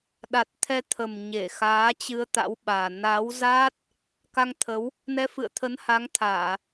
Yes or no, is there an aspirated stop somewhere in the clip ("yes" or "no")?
yes